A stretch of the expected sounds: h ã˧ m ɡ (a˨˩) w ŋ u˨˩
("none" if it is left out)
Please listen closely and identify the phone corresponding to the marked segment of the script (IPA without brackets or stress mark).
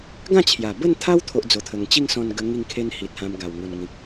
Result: a˨˩